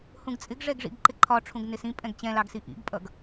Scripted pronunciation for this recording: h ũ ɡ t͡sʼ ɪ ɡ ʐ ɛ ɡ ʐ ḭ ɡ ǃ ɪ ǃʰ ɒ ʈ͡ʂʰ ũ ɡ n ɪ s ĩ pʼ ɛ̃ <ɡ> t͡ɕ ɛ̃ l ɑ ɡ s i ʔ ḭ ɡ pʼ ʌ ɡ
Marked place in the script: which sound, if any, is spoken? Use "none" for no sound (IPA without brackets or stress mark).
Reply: ɡ